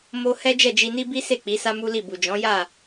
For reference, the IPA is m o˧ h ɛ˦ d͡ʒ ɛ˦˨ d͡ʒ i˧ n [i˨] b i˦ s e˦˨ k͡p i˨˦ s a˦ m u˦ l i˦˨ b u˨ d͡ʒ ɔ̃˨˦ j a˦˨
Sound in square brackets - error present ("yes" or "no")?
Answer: yes